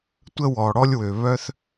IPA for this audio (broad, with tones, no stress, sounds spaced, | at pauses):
tʷ ə˦ w ɔ˩ ɽ ɔ˦ lʲ w ø˩ β œ˥ θ